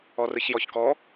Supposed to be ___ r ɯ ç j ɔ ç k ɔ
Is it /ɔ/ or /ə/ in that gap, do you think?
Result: ɔ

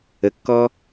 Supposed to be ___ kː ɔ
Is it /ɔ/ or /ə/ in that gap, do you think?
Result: ə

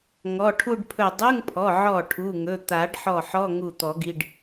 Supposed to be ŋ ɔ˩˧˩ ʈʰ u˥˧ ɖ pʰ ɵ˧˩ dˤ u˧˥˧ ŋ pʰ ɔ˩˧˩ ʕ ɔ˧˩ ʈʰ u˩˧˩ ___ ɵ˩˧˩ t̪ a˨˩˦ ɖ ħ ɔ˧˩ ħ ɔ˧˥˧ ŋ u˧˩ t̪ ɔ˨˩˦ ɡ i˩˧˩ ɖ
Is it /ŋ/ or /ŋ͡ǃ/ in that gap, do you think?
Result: ŋ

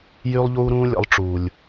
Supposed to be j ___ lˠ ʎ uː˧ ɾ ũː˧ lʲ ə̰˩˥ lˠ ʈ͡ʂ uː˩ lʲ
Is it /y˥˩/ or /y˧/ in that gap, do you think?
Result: y˧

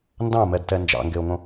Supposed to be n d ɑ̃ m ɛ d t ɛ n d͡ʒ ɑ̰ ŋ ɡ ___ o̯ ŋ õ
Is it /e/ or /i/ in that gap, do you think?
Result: e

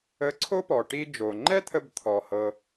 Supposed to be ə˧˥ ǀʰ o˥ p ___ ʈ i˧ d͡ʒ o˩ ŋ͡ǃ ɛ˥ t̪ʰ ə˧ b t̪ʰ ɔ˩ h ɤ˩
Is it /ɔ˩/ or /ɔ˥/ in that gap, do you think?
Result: ɔ˩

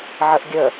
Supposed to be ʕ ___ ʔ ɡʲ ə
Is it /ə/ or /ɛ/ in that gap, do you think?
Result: ə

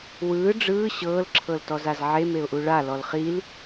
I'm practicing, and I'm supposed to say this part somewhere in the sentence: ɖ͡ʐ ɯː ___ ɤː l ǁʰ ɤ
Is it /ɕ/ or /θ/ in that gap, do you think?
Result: ɕ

